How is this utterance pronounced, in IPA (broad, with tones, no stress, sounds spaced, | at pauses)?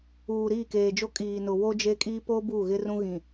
uː˨ ɾ iː˦˨ k eː˨ d͡ʒ o˦ kʼ iː˨ n ʊ˨ w o˦ d͡ʒ e˦ kʼ iː˦ p o˦ b u˦˨ ɣ ɪ˦ r ũ˦ ɣ ĩ˨